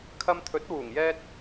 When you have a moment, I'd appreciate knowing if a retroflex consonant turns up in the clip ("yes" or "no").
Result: no